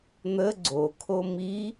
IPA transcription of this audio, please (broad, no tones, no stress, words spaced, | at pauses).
n̪ə ɡ͡ǀokʰo mi